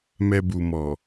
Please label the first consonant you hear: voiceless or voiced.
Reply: voiced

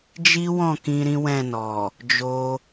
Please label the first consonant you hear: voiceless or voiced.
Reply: voiced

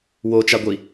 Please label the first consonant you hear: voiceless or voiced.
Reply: voiced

